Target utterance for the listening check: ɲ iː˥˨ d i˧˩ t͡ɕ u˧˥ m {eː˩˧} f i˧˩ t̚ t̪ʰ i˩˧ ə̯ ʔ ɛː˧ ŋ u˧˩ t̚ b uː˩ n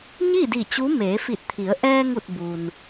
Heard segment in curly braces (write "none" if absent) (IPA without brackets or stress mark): eː˩˧